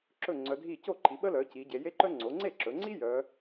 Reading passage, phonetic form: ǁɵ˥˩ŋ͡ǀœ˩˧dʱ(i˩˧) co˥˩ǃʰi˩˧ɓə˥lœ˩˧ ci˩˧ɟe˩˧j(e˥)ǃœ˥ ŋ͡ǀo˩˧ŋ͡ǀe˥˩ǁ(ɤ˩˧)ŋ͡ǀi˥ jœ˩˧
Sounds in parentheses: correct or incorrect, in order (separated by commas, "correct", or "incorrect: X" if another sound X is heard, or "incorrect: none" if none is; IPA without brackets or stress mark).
incorrect: i˥˩, correct, incorrect: ɵ˩˧